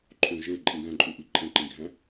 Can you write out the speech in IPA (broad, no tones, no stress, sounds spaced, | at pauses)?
ǃʰ õ ʒ e ǃʼ ĩ ɡ æ̃ ǃʼ u ʔ i ǃʼ ẽ ǃ ĩ ɡʱ æ̃